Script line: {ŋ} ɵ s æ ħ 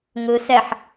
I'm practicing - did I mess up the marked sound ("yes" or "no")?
no